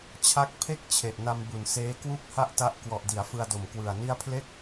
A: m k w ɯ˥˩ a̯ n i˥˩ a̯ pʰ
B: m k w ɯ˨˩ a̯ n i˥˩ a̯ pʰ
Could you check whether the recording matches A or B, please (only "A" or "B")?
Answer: B